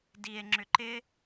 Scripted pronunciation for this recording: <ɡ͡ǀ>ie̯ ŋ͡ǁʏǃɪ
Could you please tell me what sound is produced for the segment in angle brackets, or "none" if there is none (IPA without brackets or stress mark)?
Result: d